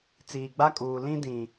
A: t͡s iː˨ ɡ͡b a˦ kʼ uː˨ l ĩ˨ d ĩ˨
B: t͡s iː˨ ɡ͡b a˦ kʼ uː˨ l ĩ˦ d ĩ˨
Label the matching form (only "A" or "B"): B